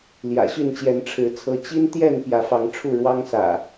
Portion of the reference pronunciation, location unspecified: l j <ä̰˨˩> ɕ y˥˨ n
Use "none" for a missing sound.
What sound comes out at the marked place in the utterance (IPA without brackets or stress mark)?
ä̰˨˩